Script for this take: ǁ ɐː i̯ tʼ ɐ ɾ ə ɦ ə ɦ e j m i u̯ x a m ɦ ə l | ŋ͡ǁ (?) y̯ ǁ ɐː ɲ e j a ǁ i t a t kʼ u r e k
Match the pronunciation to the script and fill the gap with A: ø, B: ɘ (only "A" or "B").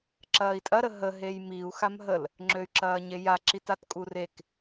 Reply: A